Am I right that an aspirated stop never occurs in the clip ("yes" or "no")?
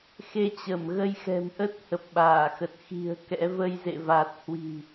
yes